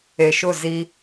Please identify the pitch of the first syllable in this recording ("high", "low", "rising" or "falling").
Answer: low